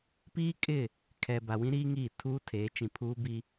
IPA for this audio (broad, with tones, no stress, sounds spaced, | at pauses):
p iː˦ kʼ ɪ˦˨ | kʰ ɛ˨ b a˨ w ĩ˦ ɾ iː˦ ŋ iː˦˨ tʰ uː˦ tʰ eː˨˦ t͡ʃ ĩ˨ pʰ uː˦ b i˦